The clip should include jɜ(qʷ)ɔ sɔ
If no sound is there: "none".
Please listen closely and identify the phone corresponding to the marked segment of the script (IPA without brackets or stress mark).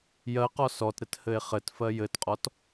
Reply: q